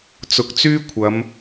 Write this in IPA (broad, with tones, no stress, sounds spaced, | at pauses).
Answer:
t͡s ʊ˨˥ k̚ t͡s yː˥ kʷʰ ɐ˨˧ m